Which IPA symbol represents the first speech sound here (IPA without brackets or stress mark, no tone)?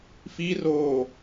f